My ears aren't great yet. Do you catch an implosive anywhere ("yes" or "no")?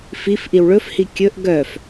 no